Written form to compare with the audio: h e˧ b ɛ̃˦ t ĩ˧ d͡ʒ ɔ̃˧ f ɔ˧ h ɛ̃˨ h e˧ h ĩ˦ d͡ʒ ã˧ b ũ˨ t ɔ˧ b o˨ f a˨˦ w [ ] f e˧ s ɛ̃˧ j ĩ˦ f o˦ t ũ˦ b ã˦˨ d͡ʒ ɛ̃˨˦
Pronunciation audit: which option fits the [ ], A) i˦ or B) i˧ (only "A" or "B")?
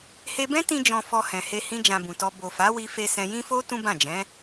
B